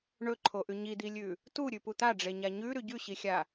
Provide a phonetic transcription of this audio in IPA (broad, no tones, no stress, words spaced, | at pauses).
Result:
ɳɵǃʰoʔʉ ɲid̪ilʲʉ | tu ɾʲʉput̪aɖ͡ʐe ɲaɲʉ ɾʉɟʉɕixʲa